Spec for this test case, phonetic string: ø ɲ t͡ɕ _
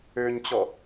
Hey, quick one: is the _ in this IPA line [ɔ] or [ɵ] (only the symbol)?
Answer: ɔ